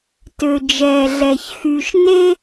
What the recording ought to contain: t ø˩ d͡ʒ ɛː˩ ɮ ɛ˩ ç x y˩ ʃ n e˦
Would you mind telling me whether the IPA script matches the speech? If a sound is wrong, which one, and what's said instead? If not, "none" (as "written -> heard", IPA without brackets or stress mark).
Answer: none